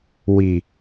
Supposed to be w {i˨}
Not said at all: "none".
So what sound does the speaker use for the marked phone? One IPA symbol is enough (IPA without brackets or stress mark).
i˨